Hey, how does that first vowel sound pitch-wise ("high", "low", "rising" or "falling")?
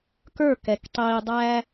falling